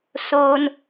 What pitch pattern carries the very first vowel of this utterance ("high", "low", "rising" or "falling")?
low